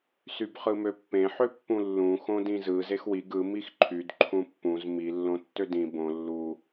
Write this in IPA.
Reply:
s y b χ ɯ m ø pː ẽ ħ ø pː ũ lː ũ x õ d ĩ z ɯ z e x w i ɡ ɯ m i x ǃʰ y d ǃʰ ũ pː ũ z m i lː õ tː ø d ĩ b õ lː u

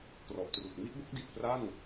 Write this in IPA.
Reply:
k r ɔ˨˩ ʔ t r u˨˩ k̚ m i˥˩ ʔ b o˥˩ k̚ d i˨˩ t̚ p r a˥˩ n

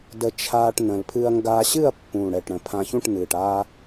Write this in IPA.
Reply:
d ə˧ t͡ʃʰ aː˧ ʈ n ə̃˨˩ l pʰ ɨ˧ ɐ̯ ŋ ɡ aː˧ ɕ ɨ˥˨ ɐ̯ pː ũ˨˩ ɽ ɛ˨˩ ʈ ɽ ə̃˨˩ pʰ ã˧ ç ũ˥˨ ʈ n ɨː˨˩ ʈ aː˧

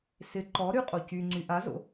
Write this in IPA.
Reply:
s ɪ ǃ ɔ ɾ y qʼ o c y ŋ͡ǀ y ʔ a z o̰

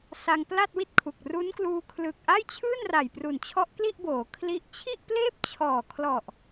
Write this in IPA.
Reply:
s a˧ ŋ p l a˥˩ t̚ w i˥˩ t̚ kʰ u˨˩ k̚ r u˦˥ n k l uː˧ kʰ l ɯː˨˩ k̚ ʔ a˥˩ j t͡ɕʰ ɯː˥˩ n r a˨˩ j p r u˨˩ n t͡ɕʰ ɔ˦˥ ʔ k l i˥˩ ʔ b oː˩˦ kʰ l i˥˩ ʔ t͡ɕʰ i˥˩ ʔ p l eː˥˩ p̚ t͡ɕʰ ɔː˨˩ kʰ l ɔ˨˩ ʔ

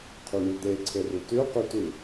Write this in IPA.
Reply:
qʰ y ɳ y d̪ e ǀʰ e r ʉ t ʉ q y t ʉ

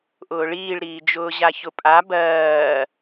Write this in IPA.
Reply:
ʔ ʊː ɭ iː ɭ ɾ iː d͡ʒ ʊː ʑ a ç ʊ pʼ a b ɜː

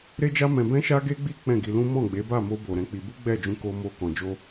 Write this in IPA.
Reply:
ɾ e˦ d͡ʒ a˦ m ɛ̃˧ b ɛ̃˦ ʃ a˦ ɡ e˦ ɡ͡b i˦ k͡p ɛ̃˦˨ ɡ i˧ l ũ˦ m ɔ̃˦˨ ɡ͡b e˨˦ b a˦˨ m o˧ b o˨ ɾ ɛ̃˧ k͡p i˧ b u˦ ɡ͡b ɛ˦˨ d͡ʒ ũ˧ k o˧ m o˧ k ɔ̃˨ d͡ʒ o˧

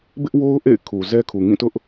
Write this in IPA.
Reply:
b ɪ˦ ʔ w o˦ ʊ̯ ʔ ḛ˦˨ ɪ̯ kʰ u˨ z ɛ˦ kʰ u˨ ŋ ĩ˦˨ t ʊ˦ ʔ

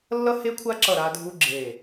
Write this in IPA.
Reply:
lː ʌ˦ h e˦ kʷʰ a˦ ǁ ʌ˧˩ ɾ a˦ dʱ u˦ ɡ͡ǁ e˧˩

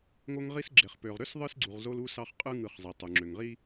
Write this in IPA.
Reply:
ŋ o˦ ŋ ʁ i˦ s ɡ͡ǁ e˨ χ p ø˨ ʁ ɾ ø˦ s ðˤ ɯ˦ s ɡ͡ǀ u˨ ʁ z o˦ l u˦ s ɑ˦ χ qʼ ɯ˦ ŋ ɯ˨ χ zˤ i˨ tˤ u˨ ŋ͡ǁ ø˨ ŋ ʁ i˦

